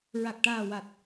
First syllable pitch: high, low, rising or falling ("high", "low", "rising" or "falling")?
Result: low